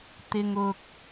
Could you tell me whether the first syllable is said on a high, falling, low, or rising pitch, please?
low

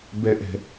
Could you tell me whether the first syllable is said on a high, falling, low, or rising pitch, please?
high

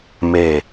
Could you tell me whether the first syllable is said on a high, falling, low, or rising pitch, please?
low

